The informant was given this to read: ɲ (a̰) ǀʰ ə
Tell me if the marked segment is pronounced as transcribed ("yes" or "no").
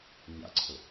yes